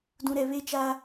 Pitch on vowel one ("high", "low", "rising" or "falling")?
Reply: low